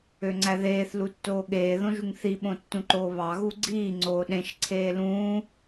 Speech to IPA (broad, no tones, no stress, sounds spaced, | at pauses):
ø ŋ͡ǀ æ ð eː θ l u tː oː ɠ eː ð õ ʒ u ŋ θ i ɓ õ tː ũ ǃ oː β ɑ ɣ u ɡ͡ǀ iː ŋ͡ǀ oː ɗ ẽ ʃ ǀʰ eː l ũː